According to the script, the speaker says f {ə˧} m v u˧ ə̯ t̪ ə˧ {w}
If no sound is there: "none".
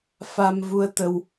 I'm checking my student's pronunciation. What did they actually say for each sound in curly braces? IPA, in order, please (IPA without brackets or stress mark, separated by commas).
a˧, w